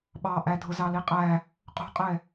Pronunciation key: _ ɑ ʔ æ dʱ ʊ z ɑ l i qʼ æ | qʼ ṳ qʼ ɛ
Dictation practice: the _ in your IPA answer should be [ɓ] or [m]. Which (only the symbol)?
ɓ